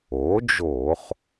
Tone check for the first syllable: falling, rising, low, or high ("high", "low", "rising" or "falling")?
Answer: rising